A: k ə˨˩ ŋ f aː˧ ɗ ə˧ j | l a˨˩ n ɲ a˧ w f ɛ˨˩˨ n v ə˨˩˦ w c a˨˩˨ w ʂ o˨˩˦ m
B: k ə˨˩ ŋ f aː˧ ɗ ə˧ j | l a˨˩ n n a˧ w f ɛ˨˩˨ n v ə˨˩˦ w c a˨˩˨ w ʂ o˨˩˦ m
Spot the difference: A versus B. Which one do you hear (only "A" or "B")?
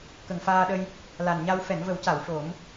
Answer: A